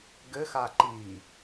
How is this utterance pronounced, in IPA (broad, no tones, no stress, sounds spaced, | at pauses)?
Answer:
ɡ ɘ x a ǃ iː